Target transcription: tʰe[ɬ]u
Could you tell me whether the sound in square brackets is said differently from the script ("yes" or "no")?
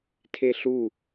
no